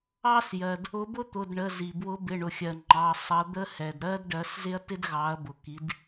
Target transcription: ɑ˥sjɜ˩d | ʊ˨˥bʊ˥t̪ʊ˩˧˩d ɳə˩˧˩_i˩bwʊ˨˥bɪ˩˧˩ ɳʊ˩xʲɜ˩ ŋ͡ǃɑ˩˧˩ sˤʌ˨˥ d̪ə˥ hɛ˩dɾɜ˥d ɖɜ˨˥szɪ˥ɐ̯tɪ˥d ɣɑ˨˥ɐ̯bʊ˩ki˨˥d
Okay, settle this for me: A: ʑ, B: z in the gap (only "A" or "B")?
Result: B